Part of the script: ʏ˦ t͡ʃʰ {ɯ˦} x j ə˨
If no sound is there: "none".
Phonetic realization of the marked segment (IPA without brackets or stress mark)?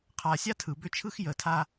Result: ɯ˦